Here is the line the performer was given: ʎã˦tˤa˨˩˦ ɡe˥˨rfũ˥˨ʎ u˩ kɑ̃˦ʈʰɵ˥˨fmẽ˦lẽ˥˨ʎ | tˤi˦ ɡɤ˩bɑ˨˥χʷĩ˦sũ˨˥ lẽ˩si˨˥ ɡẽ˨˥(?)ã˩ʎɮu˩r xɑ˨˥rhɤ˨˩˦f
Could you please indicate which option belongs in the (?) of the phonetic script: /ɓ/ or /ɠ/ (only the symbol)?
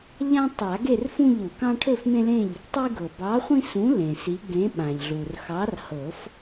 ɓ